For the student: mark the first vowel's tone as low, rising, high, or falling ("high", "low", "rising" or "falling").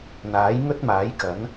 rising